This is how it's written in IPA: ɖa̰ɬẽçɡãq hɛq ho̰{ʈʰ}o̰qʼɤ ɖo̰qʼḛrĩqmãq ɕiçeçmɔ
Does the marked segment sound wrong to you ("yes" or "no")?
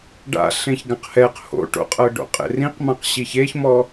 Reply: yes